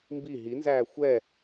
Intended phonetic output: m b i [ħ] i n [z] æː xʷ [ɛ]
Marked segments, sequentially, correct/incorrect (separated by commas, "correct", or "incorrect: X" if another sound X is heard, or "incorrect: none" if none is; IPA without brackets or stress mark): incorrect: ɦ, correct, correct